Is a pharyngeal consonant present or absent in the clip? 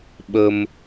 absent